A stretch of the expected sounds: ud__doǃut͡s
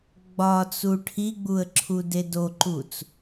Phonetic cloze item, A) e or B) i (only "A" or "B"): A